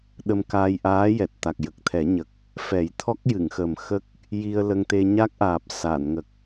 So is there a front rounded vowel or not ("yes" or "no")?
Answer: no